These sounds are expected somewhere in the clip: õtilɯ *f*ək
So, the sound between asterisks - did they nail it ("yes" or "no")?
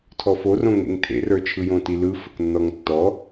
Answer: yes